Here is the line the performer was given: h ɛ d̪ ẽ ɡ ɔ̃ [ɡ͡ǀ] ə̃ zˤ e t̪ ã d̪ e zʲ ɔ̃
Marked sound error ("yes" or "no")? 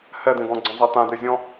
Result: no